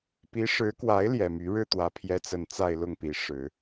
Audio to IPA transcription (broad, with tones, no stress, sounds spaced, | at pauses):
p i˧˥ ʂ ɻ̩˧˥ k w a˧˥ ɪ̯ l j ɛ˨˩ m y˧˥ ɻ ɻ̩˥˩ t̪ w ä˧˥ pʰ j ɛ˧˥ t͡s ə˨˩ n t͡s a˥˧ ɪ̯ l ʊ˥˩ ŋ p i˧˥ ʂ ɻ̩˨˩˦